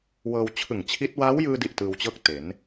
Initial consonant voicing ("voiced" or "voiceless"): voiced